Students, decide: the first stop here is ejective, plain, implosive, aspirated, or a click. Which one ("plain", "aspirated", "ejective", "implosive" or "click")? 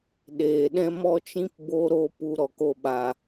implosive